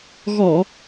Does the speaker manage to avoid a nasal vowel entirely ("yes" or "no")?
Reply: yes